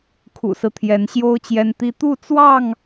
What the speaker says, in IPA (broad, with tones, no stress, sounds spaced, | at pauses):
kʰ ṵ˨˩ s ɹ̩˦ t̪ʰ j ɛ˨˦ n ɕ j o˦ ʊ̯ t͡ɕ j ɛ˦ n t̪ i˦ t̪ u˥˨ t͡s w ɑ˥˨ ŋ